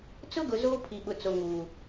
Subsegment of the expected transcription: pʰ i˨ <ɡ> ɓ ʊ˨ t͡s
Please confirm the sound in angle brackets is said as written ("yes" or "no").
no